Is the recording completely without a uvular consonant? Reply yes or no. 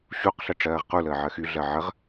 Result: no